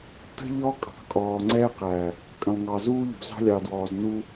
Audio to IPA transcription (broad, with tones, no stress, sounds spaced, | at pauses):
t ə̤˦ ʎ ɔ˦ kʼ ɑ̤˨ kʼ ɔː˨ ŋ͡ǀ ɛː˦ q æ˨ | kʼ ə̃˨ lˠ ŋ ɑ˨ z uː˦ ʎ ṳ˨ z ɑ̤˦ lʲ ɑ˨ d w ɔː˨ z n u˦